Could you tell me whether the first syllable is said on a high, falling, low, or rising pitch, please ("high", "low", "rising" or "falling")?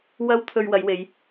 high